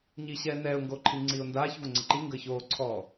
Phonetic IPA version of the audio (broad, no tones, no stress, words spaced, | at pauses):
ɲiɕɛː nɛːʊ̯ŋɡoːǃʰiŋ͡ǀiːʊ̯ ndaːçvoŋ͡ǀɪ ǃiŋɡəː çoːǀʰɔː